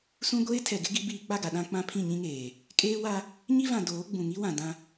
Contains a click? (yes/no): no